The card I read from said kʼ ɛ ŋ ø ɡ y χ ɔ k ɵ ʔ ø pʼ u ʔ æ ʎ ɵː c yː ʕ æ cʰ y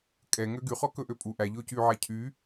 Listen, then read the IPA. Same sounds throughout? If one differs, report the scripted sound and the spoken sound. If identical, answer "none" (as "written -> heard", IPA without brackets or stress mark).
none